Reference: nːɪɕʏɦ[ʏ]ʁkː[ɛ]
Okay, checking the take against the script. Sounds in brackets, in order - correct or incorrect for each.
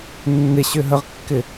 incorrect: ə, incorrect: ɪ

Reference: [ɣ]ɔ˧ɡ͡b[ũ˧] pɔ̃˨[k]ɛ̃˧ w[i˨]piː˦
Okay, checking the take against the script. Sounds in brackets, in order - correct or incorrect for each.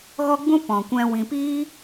correct, correct, incorrect: kʷ, incorrect: ĩ˨

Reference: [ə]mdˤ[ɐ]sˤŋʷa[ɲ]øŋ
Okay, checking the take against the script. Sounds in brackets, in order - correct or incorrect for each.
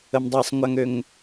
correct, incorrect: a, incorrect: ŋ

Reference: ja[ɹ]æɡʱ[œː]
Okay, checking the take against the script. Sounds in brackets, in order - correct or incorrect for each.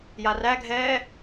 incorrect: r, incorrect: ɛː

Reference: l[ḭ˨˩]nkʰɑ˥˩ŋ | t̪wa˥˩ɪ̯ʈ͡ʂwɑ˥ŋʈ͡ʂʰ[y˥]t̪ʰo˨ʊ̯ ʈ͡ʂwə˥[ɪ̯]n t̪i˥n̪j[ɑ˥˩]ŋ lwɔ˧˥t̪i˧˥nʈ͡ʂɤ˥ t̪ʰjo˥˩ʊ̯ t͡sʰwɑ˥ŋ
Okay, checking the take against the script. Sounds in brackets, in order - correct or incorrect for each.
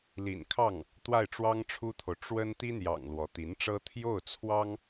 correct, incorrect: u˥, incorrect: none, incorrect: ɑ̰˨˩

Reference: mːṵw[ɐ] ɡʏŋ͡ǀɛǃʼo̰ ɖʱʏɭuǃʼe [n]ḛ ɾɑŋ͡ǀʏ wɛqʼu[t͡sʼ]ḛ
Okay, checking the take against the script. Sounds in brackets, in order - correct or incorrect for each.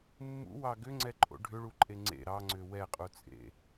incorrect: ɑ, incorrect: ŋ͡ǀ, correct

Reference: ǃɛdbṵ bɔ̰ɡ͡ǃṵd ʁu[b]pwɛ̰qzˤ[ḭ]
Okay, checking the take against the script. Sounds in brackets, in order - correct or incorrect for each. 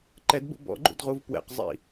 incorrect: v, correct

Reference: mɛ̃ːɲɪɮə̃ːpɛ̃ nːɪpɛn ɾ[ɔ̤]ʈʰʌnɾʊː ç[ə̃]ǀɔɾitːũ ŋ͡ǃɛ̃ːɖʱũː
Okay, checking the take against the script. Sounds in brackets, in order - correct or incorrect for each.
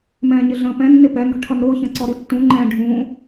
correct, correct

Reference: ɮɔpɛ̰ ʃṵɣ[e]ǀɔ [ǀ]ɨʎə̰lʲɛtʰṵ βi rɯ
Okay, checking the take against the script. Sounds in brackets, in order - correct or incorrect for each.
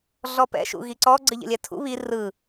incorrect: i, incorrect: ɡ͡ǀ

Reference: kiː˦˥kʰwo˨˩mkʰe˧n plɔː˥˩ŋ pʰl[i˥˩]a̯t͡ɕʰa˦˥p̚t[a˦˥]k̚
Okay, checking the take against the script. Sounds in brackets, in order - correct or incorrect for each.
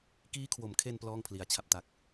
incorrect: i˧, correct

